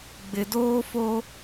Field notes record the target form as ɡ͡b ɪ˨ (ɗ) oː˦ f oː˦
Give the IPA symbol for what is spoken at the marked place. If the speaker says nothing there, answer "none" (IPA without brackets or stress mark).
d